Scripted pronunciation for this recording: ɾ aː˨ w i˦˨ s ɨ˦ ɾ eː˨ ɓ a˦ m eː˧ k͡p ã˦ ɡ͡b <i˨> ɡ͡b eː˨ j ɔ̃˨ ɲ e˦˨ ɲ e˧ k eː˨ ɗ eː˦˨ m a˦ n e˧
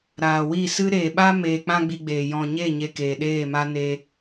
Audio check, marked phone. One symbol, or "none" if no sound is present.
i˧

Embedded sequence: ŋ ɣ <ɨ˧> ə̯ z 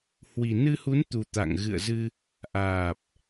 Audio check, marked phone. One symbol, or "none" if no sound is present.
ɨ̰˧˨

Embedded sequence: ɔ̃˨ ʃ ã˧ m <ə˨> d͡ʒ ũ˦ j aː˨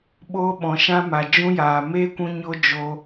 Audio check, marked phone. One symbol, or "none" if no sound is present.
a˨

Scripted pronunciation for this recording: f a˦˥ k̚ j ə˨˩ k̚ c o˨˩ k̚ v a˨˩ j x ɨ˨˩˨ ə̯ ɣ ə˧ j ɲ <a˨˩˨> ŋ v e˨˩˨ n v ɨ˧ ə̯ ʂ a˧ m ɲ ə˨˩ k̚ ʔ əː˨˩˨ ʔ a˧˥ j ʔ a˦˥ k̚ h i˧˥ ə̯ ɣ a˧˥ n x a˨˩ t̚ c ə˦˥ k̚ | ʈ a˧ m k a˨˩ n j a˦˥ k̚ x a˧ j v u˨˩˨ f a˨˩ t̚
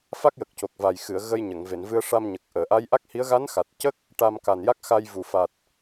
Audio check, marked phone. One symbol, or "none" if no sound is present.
ə˨˩˨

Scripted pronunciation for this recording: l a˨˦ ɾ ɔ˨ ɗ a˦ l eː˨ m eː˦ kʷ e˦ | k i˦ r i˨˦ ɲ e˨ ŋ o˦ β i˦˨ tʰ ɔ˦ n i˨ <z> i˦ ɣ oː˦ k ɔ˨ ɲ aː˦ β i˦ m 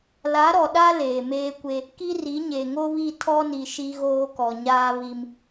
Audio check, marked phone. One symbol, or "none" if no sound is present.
ʃ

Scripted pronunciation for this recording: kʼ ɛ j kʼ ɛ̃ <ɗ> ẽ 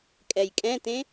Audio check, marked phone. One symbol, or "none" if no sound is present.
t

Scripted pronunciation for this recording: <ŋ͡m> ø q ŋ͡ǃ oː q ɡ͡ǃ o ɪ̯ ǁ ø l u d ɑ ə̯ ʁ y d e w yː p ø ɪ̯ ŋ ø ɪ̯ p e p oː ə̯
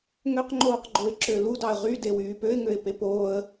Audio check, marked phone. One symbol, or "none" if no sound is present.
ŋ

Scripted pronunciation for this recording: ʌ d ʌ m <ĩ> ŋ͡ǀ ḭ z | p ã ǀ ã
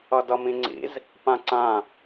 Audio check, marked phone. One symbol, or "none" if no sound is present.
ĩ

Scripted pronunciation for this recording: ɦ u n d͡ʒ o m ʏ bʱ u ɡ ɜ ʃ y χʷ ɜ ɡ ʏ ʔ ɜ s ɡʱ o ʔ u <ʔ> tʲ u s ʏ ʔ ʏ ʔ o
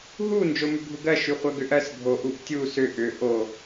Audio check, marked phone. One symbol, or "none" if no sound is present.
ʔ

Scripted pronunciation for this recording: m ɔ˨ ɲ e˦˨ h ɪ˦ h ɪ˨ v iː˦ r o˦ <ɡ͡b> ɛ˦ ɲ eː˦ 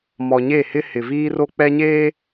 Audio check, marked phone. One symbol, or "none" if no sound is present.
k͡p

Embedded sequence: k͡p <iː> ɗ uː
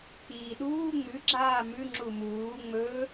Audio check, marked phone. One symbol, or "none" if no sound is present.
iː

